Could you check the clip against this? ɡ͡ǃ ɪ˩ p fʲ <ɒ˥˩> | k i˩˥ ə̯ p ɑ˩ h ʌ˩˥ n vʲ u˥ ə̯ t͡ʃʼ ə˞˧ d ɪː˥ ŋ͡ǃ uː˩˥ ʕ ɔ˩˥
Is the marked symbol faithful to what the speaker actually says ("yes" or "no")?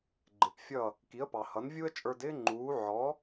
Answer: no